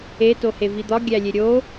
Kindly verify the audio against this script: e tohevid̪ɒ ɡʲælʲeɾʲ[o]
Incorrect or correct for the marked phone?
correct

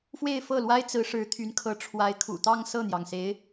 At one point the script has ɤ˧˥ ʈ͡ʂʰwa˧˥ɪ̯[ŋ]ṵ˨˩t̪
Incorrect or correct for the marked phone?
incorrect: kʰ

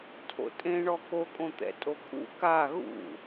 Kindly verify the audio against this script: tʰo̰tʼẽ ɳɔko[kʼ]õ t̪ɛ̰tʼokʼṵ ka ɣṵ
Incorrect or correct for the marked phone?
correct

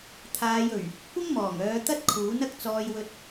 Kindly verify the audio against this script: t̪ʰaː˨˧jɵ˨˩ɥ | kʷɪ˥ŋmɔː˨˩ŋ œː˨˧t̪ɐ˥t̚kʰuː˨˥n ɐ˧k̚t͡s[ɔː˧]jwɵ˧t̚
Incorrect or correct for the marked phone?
correct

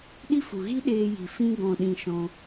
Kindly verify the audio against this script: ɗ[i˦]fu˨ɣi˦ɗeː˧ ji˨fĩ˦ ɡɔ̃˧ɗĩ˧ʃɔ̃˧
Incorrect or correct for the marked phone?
correct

